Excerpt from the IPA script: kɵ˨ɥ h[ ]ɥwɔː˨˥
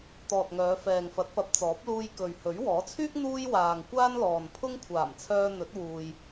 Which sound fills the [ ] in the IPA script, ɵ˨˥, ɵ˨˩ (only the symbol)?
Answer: ɵ˨˥